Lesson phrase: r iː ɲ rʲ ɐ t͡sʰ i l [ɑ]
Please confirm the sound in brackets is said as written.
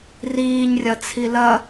no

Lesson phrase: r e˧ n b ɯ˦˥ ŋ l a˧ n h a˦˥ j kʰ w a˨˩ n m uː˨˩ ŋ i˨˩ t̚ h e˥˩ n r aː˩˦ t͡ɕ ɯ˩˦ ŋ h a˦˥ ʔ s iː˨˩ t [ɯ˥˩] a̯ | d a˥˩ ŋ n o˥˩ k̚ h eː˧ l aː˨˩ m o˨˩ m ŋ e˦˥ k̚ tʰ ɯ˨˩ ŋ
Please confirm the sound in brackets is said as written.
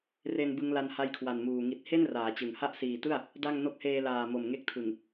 yes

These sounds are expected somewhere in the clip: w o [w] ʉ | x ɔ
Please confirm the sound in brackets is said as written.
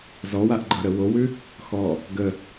yes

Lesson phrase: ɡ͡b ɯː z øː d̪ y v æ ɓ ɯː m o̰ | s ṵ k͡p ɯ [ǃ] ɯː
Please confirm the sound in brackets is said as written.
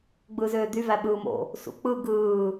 no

